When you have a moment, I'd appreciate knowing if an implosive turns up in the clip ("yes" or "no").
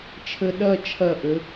yes